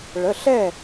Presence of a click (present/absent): absent